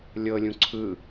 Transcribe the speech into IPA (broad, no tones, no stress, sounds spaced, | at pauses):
lʲ ɤ lʲ ũ ǀʰ ɯ